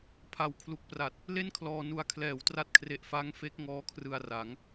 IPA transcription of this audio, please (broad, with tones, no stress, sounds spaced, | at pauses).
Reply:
pʰ a˨˩ w kʰ l u˨˩ k̚ p r a˨˩ t̚ | l e˥˩ n kʰ l ɔː˧ n u˨˩ a̯ kʰ l ɛː˩˦ w t r a˦˥ t̚ kʰ r e˨˩ ʔ f a˦˥ ŋ f e˦˥ k̚ ŋ ɔː˦˥ kʰ r ɯ˧ a̯ r a˩˦ ŋ